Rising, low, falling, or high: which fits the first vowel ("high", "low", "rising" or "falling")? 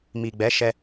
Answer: low